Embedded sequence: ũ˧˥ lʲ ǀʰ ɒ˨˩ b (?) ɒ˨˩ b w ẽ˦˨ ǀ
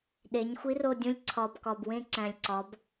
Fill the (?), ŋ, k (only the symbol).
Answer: k